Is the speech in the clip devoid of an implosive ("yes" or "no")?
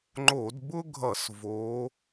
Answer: yes